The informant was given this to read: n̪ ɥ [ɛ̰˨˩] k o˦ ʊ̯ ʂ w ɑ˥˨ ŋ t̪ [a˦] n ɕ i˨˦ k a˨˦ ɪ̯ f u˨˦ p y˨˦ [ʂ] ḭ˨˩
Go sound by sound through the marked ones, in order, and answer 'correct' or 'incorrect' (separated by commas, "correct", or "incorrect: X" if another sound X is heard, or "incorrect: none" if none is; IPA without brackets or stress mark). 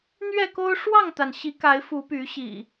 incorrect: ɛ˥˨, incorrect: a˩, incorrect: ɕ